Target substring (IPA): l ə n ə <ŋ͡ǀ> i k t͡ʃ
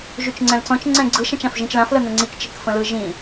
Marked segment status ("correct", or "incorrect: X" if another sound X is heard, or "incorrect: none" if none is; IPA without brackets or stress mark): correct